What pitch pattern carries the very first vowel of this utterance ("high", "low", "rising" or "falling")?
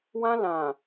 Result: high